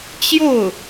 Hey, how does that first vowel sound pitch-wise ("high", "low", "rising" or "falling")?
falling